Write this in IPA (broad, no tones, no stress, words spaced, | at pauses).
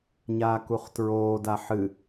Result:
ɲaːkuχtɹoː daħɨ